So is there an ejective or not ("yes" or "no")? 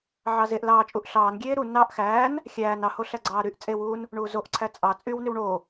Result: yes